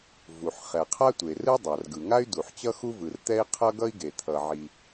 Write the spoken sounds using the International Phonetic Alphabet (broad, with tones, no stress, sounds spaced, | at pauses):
v u˩ ħ χ ɛ˩ qʰ a˦ tʷ e˩ r ɯ˦ dˤ a˩ r ɡ ɯ˩ ŋ a˦ y̯ d u˩ ħ t͡ɕ ʌ˦ x u˦ v ɯ˩ r t̪ ɛ˦ i̯ qʰ ʌ˦ ɡ ʌ˦ i̯ ɡ e˩ t̪ʰ ʌ˩ ʕ i˩